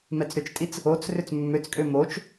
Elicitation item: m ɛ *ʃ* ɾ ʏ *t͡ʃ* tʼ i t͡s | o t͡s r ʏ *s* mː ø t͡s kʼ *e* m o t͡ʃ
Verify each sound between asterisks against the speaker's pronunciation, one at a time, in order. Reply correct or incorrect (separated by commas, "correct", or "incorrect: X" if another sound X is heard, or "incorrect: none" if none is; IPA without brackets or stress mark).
incorrect: t͡s, correct, incorrect: t͡s, incorrect: ø